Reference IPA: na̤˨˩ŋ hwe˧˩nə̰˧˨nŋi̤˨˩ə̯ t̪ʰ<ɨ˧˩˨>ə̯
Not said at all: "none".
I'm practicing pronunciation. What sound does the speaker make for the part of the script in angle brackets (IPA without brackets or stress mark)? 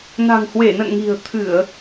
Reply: ɨ˧˩˨